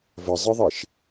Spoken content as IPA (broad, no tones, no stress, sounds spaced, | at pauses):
v ə zˤ ɨ ðˤ i ʃ